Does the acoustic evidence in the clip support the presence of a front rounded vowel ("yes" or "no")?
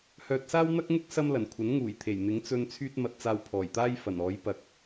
yes